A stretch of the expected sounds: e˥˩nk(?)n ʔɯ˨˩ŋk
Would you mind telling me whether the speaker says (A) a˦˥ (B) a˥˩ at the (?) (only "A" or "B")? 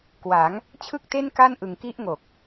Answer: B